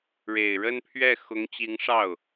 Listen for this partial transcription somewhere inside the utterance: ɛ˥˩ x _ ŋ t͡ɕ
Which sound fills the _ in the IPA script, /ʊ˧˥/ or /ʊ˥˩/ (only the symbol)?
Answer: ʊ˧˥